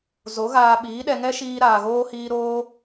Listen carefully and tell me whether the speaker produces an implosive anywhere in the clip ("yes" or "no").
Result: yes